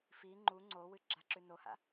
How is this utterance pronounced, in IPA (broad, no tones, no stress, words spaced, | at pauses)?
fi ŋ͡ǃu ŋ͡ǀowɨ ɡ͡ǁaǁʉnoha̰